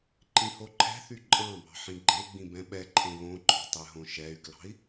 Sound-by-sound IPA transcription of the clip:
ǃ ĩ h o ǃʰ ɛ̤ θ y ǃʼ ɑ̃ b ɑ̤ ħ ĩ ɡ͡ǃ e ɡ͡b ĩ b ɛ̃ ɓ ɛ ǃʰ ẽ β õ ǃ ɔ̤ tˤ ɛ ɦ õ ʃ ɛ y̯ k l ɑ̤ i̯

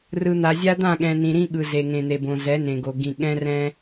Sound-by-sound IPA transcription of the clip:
r ɯ˨ n̪ a˨ zʲ a˦ d̪ ã˦˨ ɠ ɛ̃˨ n ĩ˨ ɾ ĩ˦ ɠ ɯ˨ z e˨ ŋ ẽ˨ n̪ e˨ b õ˨ z ɛ˨˦ n ẽ˨ ɡ o˨ ɡ ĩ˨ ɠ ɛ̃˦ r ɛ̃˦

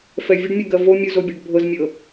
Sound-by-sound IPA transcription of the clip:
f ɛ vʲ ə ɖ mʲ o ɡ ɜ v o mʲ u z o bʲ ɛ ɖ bʱ ɤ z mʲ ɤ

